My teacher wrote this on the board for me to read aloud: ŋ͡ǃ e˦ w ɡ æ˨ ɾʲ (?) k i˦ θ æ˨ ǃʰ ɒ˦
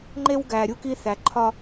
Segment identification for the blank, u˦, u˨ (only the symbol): u˦